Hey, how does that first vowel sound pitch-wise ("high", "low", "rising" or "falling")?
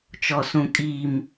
low